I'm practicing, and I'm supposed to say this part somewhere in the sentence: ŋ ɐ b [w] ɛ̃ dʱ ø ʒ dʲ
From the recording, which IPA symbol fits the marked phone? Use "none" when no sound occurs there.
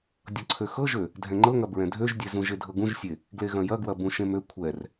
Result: ɹ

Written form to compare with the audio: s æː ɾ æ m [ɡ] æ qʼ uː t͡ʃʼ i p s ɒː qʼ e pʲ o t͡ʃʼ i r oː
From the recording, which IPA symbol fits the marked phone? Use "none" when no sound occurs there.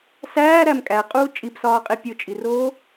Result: kʼ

